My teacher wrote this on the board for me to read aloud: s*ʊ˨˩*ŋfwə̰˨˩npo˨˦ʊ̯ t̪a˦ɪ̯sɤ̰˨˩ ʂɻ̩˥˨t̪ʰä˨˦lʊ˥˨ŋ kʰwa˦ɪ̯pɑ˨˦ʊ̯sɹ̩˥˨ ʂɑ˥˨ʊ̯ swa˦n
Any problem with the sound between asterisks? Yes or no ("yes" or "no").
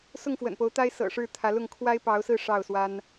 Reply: yes